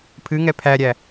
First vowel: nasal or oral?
oral